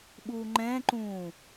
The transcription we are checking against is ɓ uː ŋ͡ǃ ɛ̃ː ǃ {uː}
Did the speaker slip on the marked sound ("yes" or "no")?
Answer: yes